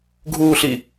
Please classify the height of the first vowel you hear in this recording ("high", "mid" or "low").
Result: high